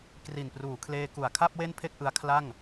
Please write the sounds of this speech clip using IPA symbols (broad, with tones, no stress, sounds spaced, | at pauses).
k r i˨˩ n p r uː˩˦ kʰ l eː˧ k u˨˩ a̯ kʰ a˥˩ p̚ w e˥˩ n pʰ e˥˩ k̚ ʔ ɯ˦˥ a̯ kʰ l a˥˩ ŋ